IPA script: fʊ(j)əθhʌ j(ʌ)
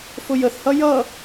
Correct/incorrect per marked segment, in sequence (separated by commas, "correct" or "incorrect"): correct, correct